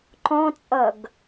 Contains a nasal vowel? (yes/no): yes